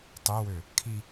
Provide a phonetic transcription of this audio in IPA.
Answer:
tˤøwø | kʰi

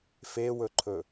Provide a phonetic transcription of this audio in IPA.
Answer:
fewɵǃʰɵ

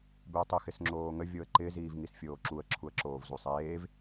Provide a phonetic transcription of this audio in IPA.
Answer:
bɪə̯tˤɪ xɪsŋ͡ǁoːŋə vʲoə̯ǃɪ ziːvŋisfʲoːǁuə̯ ǁʰuə̯ǁoːvzusˤeːv

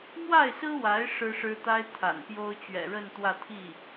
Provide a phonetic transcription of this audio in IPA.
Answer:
mwa˥˩ɪ̯sɹ̩˥wa˧˥ɪ̯ ʂɻ̩˥ʂɻ̩˥t̪a˥ɪ̯ t̪ʰa̰˨˩npjo˥ʊ̯ t͡ɕɥɛ̰˨˩ɻə˥˧n t̪wä˥˧t̪ʰi˥˩

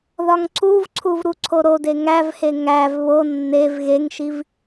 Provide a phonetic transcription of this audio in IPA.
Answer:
ðɒŋǀuvǀʰuv ɾuǀʰoɾode ŋævhe ŋæv βo nːev ɣeŋʃiv

